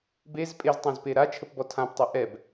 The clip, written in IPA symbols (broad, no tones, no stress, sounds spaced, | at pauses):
b e z pʼ e z tˤ ɛ̃ z p e ɾ a t͡ʃʰ ə p b ɔ tʰ ã p tˤ ɛ ʔ ɛ b